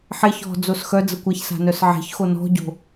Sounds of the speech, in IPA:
ħeç ɔ̤ d͡zosxœd͡zəkʷaç sa̤nœsʕe̤ç xonɔ̤ɟo̤

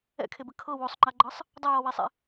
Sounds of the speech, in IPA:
ɛ̰kʰebɘ kʰɤ wosˤŋ͡ǃaɡ͡ǃɤsˤ | dˤɘjɔwesˤḛ

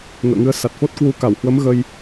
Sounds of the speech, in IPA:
ŋə̰ː˧˨ŋɨ˧ə̯ sa˨˩t̚fo˦˥t̚kwu˧ ka˧˩whwə˨˦m ɣə˧j

